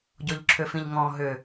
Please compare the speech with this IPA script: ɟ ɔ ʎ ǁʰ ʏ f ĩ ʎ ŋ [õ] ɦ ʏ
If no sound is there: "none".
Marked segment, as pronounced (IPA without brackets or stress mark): ɔ̃